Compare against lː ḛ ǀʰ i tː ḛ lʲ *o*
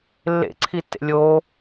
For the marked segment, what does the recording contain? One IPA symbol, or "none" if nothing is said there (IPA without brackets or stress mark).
o